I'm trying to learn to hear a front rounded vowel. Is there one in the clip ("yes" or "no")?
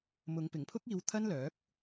yes